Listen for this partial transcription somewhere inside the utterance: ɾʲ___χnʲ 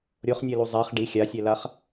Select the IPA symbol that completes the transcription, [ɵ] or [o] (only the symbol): o